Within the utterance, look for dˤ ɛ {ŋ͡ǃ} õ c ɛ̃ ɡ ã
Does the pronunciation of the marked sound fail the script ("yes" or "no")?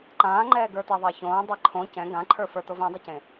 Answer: yes